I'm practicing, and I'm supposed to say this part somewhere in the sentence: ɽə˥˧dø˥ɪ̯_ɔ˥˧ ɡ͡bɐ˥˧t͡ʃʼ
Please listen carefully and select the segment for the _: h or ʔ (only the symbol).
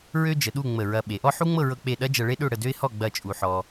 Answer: h